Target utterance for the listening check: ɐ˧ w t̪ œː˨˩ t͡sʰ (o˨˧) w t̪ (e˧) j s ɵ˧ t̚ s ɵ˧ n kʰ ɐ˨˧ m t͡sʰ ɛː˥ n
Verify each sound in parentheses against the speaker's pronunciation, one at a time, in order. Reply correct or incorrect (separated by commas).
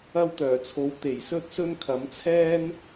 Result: correct, incorrect